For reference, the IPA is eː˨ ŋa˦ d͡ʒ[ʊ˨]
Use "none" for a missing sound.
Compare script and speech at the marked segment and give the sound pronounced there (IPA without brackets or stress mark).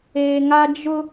ʊ˦